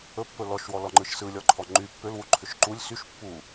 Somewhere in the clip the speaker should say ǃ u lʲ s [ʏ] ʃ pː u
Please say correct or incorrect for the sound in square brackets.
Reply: incorrect